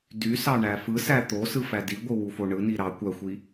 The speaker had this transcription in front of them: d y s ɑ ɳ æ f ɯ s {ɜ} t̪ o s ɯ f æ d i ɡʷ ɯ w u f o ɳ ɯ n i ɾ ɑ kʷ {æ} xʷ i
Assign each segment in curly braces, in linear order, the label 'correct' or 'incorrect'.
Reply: incorrect, correct

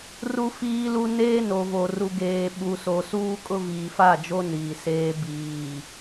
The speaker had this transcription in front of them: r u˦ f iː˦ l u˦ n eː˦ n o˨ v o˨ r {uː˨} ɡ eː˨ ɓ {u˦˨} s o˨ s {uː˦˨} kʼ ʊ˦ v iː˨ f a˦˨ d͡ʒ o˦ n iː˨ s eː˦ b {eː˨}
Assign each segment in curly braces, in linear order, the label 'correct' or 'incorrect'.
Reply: incorrect, incorrect, incorrect, incorrect

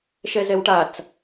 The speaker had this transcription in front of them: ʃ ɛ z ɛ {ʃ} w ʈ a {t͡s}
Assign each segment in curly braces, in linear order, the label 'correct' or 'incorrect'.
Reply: incorrect, correct

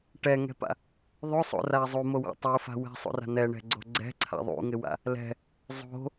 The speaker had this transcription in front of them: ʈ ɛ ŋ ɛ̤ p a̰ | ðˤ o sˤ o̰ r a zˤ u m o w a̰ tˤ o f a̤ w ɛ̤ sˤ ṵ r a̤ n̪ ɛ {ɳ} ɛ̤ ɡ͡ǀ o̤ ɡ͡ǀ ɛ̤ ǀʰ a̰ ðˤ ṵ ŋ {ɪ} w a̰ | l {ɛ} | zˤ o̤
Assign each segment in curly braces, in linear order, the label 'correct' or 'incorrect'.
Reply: correct, correct, incorrect

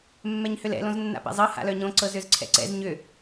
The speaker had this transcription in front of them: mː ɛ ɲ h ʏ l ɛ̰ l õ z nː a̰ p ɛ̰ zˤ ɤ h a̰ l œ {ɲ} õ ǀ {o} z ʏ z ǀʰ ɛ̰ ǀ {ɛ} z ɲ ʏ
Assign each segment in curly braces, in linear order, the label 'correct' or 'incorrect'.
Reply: correct, incorrect, incorrect

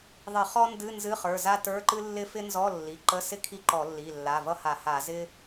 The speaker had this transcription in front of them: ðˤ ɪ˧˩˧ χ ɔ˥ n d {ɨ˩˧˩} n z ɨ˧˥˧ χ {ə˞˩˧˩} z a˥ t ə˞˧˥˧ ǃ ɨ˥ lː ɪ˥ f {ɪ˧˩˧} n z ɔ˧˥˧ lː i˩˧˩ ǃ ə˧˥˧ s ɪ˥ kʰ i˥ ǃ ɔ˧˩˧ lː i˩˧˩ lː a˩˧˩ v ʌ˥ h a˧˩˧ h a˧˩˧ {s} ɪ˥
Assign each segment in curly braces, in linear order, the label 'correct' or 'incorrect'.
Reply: incorrect, correct, incorrect, incorrect

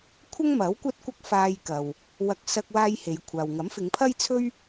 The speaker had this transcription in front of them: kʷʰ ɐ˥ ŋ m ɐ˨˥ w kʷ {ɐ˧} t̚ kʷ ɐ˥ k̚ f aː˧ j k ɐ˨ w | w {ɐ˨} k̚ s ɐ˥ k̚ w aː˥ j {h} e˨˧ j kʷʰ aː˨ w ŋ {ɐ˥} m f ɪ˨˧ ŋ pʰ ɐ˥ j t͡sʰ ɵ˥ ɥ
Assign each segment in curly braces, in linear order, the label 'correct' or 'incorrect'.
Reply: incorrect, incorrect, correct, incorrect

